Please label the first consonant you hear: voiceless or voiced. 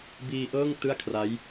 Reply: voiced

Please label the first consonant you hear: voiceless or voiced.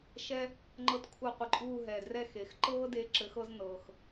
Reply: voiceless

